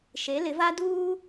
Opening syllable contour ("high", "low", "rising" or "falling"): rising